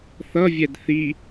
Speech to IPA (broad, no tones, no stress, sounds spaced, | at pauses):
θ ʌ vʲ ɛ d θ i